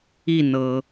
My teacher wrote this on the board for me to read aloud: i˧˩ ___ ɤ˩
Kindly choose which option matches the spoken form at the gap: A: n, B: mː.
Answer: A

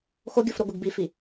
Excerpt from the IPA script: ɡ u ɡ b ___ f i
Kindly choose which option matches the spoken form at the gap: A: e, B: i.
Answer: B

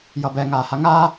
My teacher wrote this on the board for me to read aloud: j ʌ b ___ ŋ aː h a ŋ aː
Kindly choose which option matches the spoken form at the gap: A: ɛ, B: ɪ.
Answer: A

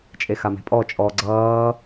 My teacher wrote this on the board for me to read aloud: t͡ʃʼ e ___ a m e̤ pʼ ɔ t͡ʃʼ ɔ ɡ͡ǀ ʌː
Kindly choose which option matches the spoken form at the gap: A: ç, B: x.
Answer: B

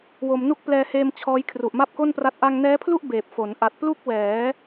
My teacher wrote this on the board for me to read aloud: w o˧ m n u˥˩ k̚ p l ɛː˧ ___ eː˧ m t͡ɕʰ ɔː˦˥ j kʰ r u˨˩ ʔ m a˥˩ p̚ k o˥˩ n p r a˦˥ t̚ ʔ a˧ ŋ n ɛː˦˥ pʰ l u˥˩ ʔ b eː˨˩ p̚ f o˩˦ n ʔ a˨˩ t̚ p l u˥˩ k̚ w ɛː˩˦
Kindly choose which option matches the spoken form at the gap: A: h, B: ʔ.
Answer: A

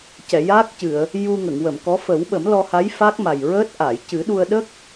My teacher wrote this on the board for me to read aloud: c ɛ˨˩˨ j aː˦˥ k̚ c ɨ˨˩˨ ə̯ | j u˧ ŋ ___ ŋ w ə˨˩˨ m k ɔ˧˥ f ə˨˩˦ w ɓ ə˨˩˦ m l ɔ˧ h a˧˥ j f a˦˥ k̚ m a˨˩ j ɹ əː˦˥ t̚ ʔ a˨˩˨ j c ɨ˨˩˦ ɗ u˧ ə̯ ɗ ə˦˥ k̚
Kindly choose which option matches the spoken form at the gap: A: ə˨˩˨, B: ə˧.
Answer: A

